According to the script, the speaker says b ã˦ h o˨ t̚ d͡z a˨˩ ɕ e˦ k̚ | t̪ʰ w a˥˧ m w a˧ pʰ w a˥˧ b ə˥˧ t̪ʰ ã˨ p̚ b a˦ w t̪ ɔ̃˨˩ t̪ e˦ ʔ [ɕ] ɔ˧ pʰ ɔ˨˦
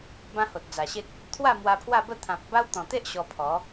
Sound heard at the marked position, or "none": ɕ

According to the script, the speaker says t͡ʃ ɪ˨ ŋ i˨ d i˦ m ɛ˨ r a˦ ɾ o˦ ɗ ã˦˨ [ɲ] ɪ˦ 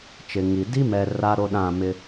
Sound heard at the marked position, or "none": m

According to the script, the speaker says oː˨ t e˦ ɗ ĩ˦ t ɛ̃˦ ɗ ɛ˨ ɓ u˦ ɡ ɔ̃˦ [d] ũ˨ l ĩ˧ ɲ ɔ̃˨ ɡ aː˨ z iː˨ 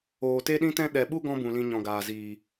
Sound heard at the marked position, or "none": b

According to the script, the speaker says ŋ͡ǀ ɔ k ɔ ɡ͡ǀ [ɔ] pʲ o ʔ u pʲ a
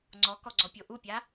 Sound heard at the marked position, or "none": ɔ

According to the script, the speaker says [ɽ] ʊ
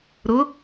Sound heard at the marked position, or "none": ɾ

